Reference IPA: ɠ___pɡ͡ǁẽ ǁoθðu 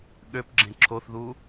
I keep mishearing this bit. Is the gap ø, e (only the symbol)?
ø